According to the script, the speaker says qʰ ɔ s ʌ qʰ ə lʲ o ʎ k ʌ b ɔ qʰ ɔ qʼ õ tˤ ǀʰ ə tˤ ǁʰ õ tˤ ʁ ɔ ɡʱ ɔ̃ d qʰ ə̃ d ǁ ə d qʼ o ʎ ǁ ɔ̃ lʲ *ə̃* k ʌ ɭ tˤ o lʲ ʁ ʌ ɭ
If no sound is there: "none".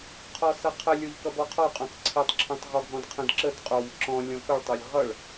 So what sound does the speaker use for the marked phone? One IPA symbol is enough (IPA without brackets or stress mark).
ɔ̃